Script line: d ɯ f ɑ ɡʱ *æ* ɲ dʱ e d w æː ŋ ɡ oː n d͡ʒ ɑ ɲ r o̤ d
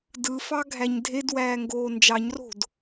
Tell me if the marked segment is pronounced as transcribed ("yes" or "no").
yes